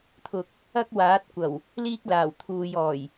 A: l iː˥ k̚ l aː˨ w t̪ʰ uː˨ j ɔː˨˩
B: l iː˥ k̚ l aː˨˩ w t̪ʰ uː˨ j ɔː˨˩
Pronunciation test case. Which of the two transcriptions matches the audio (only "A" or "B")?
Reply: B